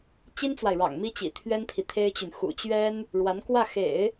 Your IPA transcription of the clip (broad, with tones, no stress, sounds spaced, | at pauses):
t͡ɕ i˥ n t͡s w a˨ ɪ̯ ɻ ɑ̰˨˩ ŋ m i˥ t͡ɕ ḭ˨˩ t̪ʰ ɥ ɛ˥ n pʰ i˨ t̪ʰ e˥ ɪ̯ t͡ɕ y˨ n x ṵ˨˩ t͡ɕ ɥ ɛ˥ n | ɻ w a˧˥ n k w ä˥˩ x ḛ˨˩˦ ɪ̯